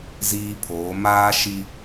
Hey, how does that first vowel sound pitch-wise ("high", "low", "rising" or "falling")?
high